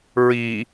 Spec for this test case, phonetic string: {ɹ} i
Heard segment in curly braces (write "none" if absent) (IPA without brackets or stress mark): ɹ